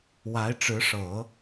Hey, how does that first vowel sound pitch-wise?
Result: rising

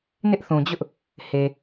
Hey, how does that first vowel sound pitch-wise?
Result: high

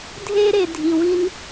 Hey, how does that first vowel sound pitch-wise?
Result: high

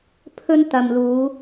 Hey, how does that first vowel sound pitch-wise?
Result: high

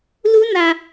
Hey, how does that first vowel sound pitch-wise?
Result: high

